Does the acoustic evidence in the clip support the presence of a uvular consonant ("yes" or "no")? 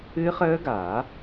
yes